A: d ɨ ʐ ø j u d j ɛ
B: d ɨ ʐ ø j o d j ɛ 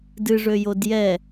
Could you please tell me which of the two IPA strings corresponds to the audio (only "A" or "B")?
B